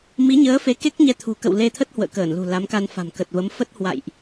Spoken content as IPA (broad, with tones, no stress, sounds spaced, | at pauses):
m i˨˦ ɲ əː˨˦ f e˨˦ k e˦˥ k̚ ɲ ɛ˧ t̪ʰ ṳ˨˩ k ə̰˧˨ w l e˧ t̪ʰ ə˦˥ t̚ h w ə̰ː˧˨ k əː˧˩ n l ṳ˨˩ l a˨˦ m k a˧ n f a̤˨˩ m k ə˨˩ t̚ v ə˨˦ m f ə˦˥ t̚ h w a̰˧˨ j ʔ